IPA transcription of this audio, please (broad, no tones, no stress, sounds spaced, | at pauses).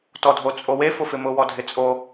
t ɔ dʱ o t͡sʼ o w e f ʊ f ɪ m ʊ w ɔ dʱ ɪ t͡sʼ o